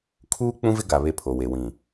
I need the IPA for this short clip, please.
kʰ uː˦ k͡p ũ˦ v ɪ˦ ɡ a˨ β e˦ pʰ o˨ w e˨ w ĩ˨

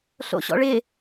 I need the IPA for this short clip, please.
ɬ o̰ ɕ ɔ̰ ɭ ɪ

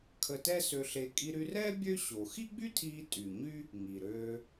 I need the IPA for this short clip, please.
kʰ ə˧ t ɛ˥ s ø˧ ɬ e˧ kʼ i˧ ɾ y˧ r ɛː˥ bʲ ø˥ ɕ o˩ x i˥ ɡ͡b y˥ tʰ iː˧ tʼ y˩ ɲ y˥ | ŋ i˩ ɾ øː˧

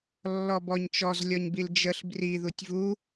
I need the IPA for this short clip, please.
lː ɔ b ɔ ɲ t͡ʃ ɔ z lʲ ɔ ɲ b i l d͡ʒ ə ɬ b r i ð u tʲ v u

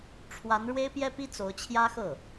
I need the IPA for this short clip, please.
ʈ͡ʂʰ w a˧˥ n ɻ w e˥ ɪ̯ p j ɛ˥ p i˥ t͡s o˧˥ ʊ̯ t͡ɕʰ j ä˥ x ɤ˥˩

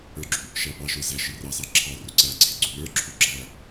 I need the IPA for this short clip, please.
ə˞ ɡ͡ǁ u | ʃ æ p ɑ ʃ ə˞ z æ ʃ ɪ r ɑ s ɑ ǁʰ ɑ r ʊ ǀ æ ǀʰ ɪ ɡ͡ǀ u l ə˞ ǁʰ u ɡ͡ǁ æ

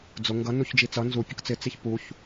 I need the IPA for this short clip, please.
d͡z ʊ ŋ ɡ ʌ n u ç d͡ʒ i t͡s ʌ n z u pʲ ʌ k t͡s ɪ t͡s i ç p u ç

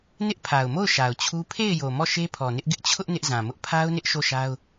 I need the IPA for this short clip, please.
n ɪ˦ ʔ pʰ a˨ ʊ̯ m o˦˨ ʊ̯ ʃ a˨ ʊ̯ t͡ɕʰ u˦ pʰ e˦˨ ɪ̯ j o˨ m ɔ˦˨ ʃ e˦ pʰ ɔ˨ n ɪ˦ ʔ ɡ ɪ˦ ʔ t͡ɕʰ ʊ˦ ʔ n ɪ˦ ʔ z ã˨ m ʊ˦ ʔ pʰ a˦ ʊ̯ n ɪ˦ ʔ ʃ o˦˨ ʃ a˦ ʊ̯

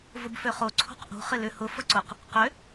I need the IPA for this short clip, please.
v ʊ b f ø χ o ǀʰ o̤ q ʔ o̤ χ ɪ l ʏ h ʊ f ʊ ǀ ʊ q | q ʏ

